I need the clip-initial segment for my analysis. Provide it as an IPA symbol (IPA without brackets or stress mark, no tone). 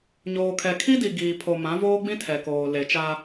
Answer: ɲ